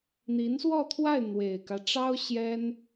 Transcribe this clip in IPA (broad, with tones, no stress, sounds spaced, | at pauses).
n̪ i˧˥ n s w ɔ˥˧ t̪ʰ w a˥˩ ɪ̯ n̪ w e˨˩ ɪ̯ k ä˦ ʈ͡ʂ ɑ˥ ʊ̯ ɕ j ɛ˥ n